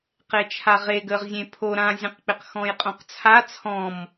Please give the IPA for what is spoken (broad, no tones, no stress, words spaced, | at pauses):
qet͡ʃʰaʁeɡ əʁzʲẽ pʰo ɾãzʲə̃qk͡pɪq xɔ̃jqʼõqt͡sʰa t͡sʰɔ̃m